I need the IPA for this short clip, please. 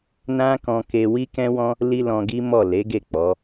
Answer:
n ã˦ k ɔ̃˧ k e˧ w i˦ k ɛ̃˦ w ɔ̃˦ | l i˦ l ɔ̃˧ ɡ i˦ m ɔ˦˨ l e˨˦ ɡ e˦˨ k͡p ɔ˨˦

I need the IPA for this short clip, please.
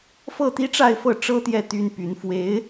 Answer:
f ɤ˥˩ t̪ i˥ ʈ͡ʂ a˥˧ ɪ̯ f ɤ˥˩ ʈ͡ʂ ɤ˥ t̪ j ɛ˥˩ t̪ y˥ n p y˧˥ n f w e˧˥ ɪ̯

